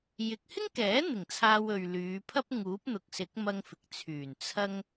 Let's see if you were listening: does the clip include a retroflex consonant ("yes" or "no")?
no